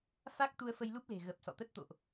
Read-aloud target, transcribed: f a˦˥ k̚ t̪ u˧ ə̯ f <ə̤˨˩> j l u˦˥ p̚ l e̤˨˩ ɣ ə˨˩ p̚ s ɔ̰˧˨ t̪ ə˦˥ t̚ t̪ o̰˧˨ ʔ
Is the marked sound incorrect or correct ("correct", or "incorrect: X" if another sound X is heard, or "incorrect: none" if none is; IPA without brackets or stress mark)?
incorrect: ə˧